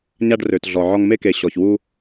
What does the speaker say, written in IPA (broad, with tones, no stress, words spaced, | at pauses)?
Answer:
ɲa˧ɖrø˨tɮɔ˨ ʕɔ˧ŋ me˧ke˨ɕɔ˨çwu˧